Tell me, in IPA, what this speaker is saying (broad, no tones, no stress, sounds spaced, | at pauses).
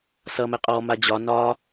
s ʌ m ɛ qʼ ɔ m a d͡ʑ ɒ n ɒ